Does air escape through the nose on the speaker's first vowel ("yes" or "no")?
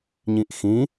yes